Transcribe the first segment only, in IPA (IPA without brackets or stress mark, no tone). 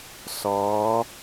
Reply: s